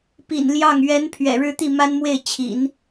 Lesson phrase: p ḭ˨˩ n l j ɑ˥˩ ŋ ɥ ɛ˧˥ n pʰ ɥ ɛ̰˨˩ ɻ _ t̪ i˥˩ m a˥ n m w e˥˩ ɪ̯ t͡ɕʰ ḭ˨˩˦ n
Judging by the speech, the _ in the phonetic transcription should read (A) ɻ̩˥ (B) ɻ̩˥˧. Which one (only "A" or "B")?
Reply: B